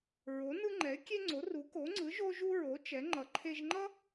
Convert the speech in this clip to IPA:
ɹ o˩˥ n ɯ˦ ŋ͡ǃ ɛ˩˥ ɪ̯ kʲ e˦ ŋ͡ǀ o˩˥ r u˩˥ k o˩˥ ŋ͡ǀ ɯ˩˥ ʒ o˦ ʒ u˦ ɹ o˩˥ t͡ʃ ɛ˩˥ ŋ͡ǃ ʌ˩˥ ǃʰ e˦ ʒ ŋ͡ǃ ʌ˦

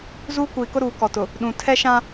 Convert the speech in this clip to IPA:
z uː˦ kʷ iː˨ k ʊ˦ ɾ uː˨ k ɔ˨ t ʊ˨ | ɗ ũ˨ tʰ ɛ˦ ʃ ã˦

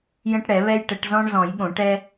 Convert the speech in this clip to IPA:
j ə̃˦ ʈ ɽ ɛ˨˩˦ β ɛ˦ j ʈ ə˨˩˦ ʈ z ɔ̃˦ ɳ z ɔ̃˨˩˦ j ɠ õ˨˩˦ ʈ ɛ˦

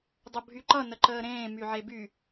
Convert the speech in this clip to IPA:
dˤ o bʱ y ǃ ʌ n ə ǃ əː ɾ ẽː m y ʕ e b y

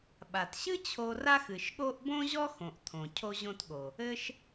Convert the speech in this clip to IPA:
ɓ a˩ t ɕ ɨ˥ t͡ɕʰ o˧ r a˥ x ɨ˩ ʃ ɠ o˥ ʔ b õ˥ ʑ ɔ˥ x õ˩ ʔ t̪ʰ õ˩ cʰ o˧ ʑ õ˧ t ɠ o˩ | ɘ˧ ʃ

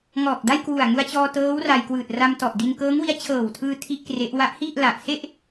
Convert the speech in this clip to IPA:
ŋ ɔː˨˩ k̚ d a˥˩ j k w u˨˩ a̯ ŋ u˧ a̯ t͡ɕ ɔː˧ t ɤː˦˥ w r a˧ j k w ɯː˨˩ t̚ r a˧ m t ɔ˨˩ ʔ d i˧ n k ɤː˦˥ ŋ w i˦˥ a̯ t͡ɕʰ ɤː˨˩ w tʰ ɯː˧ tʰ i˥˩ ʔ k r e˦˥ ʔ w a˦˥ ʔ h i˥˩ ʔ l a˨˩ ʔ s e˥˩ ʔ

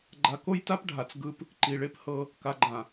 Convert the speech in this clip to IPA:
ɡ͡ǃ a˨ k o˦ j t a˦ p ɖʱ a˨ t͡s ɡ ɯ˦ p | ǃ i˨ ɭ e˦ p h ɤ˦ | k a˨ ɡ͡ǃ ã˨

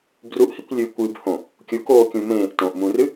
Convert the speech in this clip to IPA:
b r u ʔ h i kʷ lʲ ɨː kʷ ɨː b h õ | kʲ u k oː kʲ ũ m ẽː ʔ t õ ʔ m ũ r ɨ

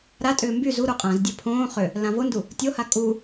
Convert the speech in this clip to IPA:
ɾ a tʼ ʏː m b y z u ɾ u qʼ ã z dʲ ɘ pʰ õː χ ʏ | l ã v o n d u | tʲ o h a kʼ u

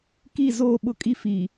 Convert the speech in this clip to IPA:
k i˦˨ z oː˦˨ ɓ ʊ˦ kʼ i˦ f i˨

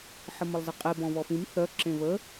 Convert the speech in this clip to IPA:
ħ ə m ə lˠ z ə qʼ e b ɔ̃ β ɔ f ĩ m θ œ ǁ ẽ β ə

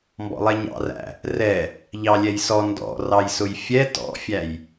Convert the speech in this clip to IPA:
m b ɔ̰ lˠ ɛ ɲ ɑ̰ r æ̰ | r ɛ | ʎ ɑ lʲ ɛ j s ɔ n d ɔ̰ r ɑ j s ʊ j fʲ ɛ t ɔ̰ fʲ æ j

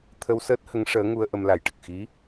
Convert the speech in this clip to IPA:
t̪ʰ ə˧ w s əː˦˥ t̚ h ə˧˥ ŋ ʂ əː˧˥ ŋ u˧ ə̯ ʔ ə˧ m l a˨˩ j ʈ ə˨˩ k̚ x i˧˥

